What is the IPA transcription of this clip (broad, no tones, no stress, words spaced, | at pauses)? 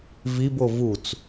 vibo vut͡s